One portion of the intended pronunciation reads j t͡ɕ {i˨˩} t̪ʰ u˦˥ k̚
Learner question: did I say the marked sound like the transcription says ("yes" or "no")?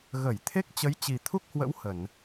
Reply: yes